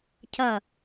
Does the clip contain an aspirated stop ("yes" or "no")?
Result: yes